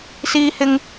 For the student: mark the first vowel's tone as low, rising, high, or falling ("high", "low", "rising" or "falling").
high